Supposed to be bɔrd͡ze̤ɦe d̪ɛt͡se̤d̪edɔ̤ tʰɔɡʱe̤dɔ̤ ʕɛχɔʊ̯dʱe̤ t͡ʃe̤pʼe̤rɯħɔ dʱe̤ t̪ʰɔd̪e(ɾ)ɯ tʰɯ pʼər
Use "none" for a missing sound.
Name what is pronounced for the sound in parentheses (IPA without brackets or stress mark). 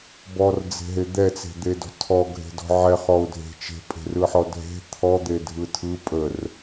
dʱ